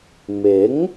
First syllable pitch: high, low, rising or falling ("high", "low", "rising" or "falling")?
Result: rising